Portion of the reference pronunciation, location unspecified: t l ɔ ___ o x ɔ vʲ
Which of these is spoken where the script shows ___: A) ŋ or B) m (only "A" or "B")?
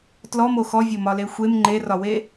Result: B